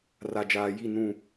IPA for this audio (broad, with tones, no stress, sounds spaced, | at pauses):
r a˨ d͡ʒ aː˨ j i˦˨ n ũ˦˨